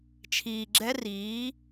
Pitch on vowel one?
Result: low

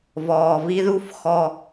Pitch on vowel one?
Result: low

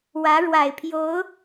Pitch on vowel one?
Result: rising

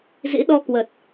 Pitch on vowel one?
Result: rising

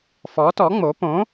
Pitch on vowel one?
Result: rising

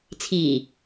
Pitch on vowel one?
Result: low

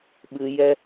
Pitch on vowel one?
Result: high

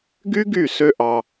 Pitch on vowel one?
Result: high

